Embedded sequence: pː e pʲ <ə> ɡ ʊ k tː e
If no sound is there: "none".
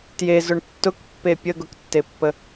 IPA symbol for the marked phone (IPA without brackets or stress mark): ə